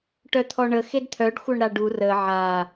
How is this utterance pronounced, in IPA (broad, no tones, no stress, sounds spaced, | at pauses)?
ʈ œ t̪ʰ ɔ ɳ ə x e d t̪ʰ œ ɖ xʷ œ ɳ ɾ a ɖ u r ə ʕ a